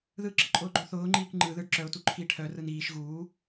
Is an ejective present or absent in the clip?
present